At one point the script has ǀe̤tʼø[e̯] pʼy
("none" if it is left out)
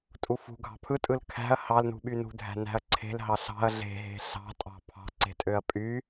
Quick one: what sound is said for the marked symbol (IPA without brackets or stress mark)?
ɐ̯